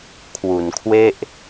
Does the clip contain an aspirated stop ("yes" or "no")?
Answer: yes